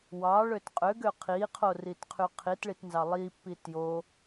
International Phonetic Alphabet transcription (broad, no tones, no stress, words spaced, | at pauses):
wɑɭøt qʼøɡø qʰiqʰoritqʰy qʰitɭitnzɑ lˠipːi tjo